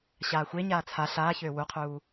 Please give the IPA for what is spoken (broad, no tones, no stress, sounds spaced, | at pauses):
ɕ aː xʷ e ɲ aː t͡sʰ a ɬ aː ç øː w u qʰ uː